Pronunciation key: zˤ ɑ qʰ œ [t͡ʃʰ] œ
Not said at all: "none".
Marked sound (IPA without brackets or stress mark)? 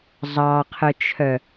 t͡ʃʰ